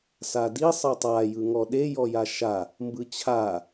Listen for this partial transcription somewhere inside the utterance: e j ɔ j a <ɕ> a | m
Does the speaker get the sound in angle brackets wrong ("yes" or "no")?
yes